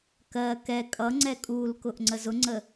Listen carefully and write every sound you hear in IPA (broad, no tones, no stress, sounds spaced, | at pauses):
k ɜ k ɛ kʼ ʌ ŋ͡ǀ ɛ kʼ u l k ʊ ʔ ŋ͡ǀ ə z ʊ ŋ͡ǀ ə